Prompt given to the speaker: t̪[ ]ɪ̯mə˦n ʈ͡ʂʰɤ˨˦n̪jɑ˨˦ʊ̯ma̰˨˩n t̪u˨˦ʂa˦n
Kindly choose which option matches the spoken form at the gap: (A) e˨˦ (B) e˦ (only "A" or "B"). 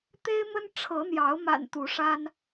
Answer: B